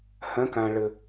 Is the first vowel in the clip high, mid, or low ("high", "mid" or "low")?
mid